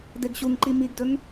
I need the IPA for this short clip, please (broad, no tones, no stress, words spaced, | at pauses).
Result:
deɡɕuŋǃi miɡdɵŋ